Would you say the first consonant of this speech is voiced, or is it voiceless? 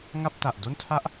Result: voiced